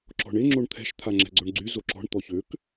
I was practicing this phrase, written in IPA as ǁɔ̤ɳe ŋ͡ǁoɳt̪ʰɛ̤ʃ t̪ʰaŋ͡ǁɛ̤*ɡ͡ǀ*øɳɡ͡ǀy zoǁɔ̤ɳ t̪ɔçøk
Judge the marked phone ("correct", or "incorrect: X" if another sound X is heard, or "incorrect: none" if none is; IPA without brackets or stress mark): correct